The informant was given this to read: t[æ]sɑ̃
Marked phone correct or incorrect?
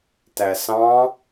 correct